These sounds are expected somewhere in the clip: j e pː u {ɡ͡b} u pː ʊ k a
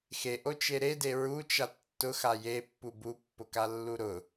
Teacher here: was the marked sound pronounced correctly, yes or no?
no